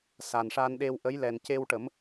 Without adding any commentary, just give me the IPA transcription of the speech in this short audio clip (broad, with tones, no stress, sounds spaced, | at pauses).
s a˨˩ n ʂ a˧ n ɗ e˧ w ʔ ə˧˥ j l ɛ˨˩ n c e˧ w ʈ ə˨˩˦ m